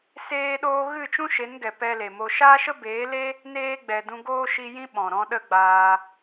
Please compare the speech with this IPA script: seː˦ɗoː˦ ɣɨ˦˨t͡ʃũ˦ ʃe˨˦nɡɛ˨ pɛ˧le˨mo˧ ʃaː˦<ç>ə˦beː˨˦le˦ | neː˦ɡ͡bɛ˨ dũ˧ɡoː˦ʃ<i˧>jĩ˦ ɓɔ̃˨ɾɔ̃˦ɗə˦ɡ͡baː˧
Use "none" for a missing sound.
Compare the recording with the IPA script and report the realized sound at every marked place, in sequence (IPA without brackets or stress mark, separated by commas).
ʃ, i˧